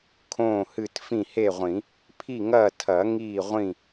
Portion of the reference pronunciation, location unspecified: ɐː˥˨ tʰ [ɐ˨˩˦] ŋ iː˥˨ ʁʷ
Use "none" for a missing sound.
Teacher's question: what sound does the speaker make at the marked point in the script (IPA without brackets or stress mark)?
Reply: ɐ˨˩˦